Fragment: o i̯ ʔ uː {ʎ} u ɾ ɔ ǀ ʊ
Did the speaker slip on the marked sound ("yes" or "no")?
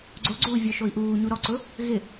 yes